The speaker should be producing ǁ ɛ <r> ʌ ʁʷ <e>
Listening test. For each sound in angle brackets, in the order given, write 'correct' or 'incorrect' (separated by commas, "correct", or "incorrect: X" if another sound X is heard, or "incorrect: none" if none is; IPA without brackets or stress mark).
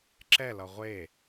incorrect: l, correct